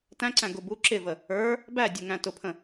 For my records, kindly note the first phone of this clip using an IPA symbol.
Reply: t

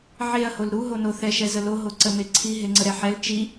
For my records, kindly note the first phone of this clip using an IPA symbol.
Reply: ʕ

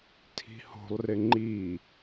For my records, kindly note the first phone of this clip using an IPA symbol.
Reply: tʰ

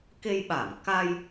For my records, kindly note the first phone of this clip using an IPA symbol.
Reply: k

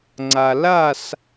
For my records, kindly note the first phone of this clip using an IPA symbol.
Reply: ŋ͡ǀ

